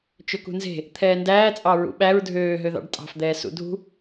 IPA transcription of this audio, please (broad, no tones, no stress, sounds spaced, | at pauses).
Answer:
t͡ʃ ɵ k ṳ n z e̤ | t̪ʰ ɛː n d æː t͡sʼ ɑ ɹ ṵ ɓ æ ɹ dʱ øː ɦ ø ð ɑ̰ ɖ tʼ ɑ̤ f d̪ ɛː s ṵ dʱ ṳ